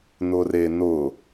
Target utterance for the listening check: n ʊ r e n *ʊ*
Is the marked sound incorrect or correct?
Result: correct